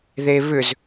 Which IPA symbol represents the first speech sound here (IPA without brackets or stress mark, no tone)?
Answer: ð